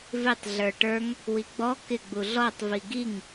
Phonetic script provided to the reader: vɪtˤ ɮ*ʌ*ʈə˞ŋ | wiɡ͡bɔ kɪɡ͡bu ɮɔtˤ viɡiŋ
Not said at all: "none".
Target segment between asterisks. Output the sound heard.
ə˞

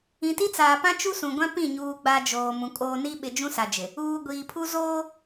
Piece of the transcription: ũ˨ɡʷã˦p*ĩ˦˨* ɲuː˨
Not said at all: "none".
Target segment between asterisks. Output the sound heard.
ĩ˦˨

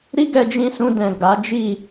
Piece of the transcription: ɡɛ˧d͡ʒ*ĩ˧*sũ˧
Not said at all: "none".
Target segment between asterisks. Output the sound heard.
ĩ˧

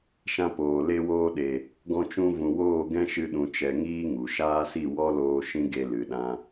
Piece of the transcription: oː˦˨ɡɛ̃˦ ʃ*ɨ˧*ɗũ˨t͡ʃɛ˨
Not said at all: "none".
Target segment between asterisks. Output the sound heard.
ɨ˧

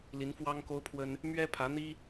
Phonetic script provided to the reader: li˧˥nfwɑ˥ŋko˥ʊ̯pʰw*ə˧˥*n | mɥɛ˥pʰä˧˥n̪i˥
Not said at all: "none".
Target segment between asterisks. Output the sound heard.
ə˥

